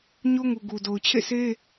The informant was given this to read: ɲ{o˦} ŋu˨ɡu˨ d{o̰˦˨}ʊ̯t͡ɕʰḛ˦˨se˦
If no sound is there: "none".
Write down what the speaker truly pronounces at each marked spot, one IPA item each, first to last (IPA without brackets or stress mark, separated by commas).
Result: o˦, o˨